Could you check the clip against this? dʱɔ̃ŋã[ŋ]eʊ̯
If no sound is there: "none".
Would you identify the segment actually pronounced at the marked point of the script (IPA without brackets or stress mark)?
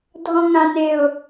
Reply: n